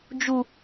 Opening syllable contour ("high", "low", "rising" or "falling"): high